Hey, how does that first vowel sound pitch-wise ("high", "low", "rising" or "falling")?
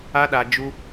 high